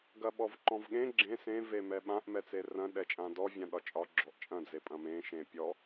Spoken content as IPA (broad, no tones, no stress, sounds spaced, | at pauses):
ɡ ɐ ɓ ɔ v ǃ ɔ̃ v ɠ ẽ ɡ͡ǁ ẽ s ẽ v e m ɛ ɓ ã ʔ m ɛ t͡s e r ɐ̃ ɗ ɛ t͡ʃʼ ã d ɔ vʲ ã ɗ ɒ t͡ʃʼ ɒ ɡ͡ǁ ɔ ʔ t͡ʃʼ ɐ̃ d͡z e pʼ ɐ̃ m ẽ ʃ ẽ pʲ ɔ